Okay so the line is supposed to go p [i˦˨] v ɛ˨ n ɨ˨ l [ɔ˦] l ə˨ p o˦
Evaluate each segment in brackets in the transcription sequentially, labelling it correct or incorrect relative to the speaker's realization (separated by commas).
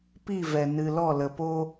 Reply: correct, incorrect